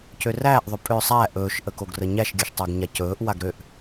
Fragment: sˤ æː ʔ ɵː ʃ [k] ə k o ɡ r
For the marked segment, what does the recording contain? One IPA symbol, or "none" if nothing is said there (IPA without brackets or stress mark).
ʔ